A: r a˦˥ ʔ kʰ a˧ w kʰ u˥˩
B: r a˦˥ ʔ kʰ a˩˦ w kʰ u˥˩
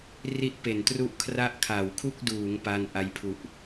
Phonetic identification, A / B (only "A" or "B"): B